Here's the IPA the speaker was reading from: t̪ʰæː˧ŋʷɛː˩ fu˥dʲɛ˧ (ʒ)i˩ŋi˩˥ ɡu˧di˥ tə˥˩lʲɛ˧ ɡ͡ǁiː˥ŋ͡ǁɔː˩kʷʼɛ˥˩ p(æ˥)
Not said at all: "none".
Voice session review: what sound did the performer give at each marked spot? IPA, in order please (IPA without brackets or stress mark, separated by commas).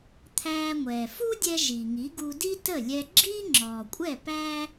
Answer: ʒ, æ˥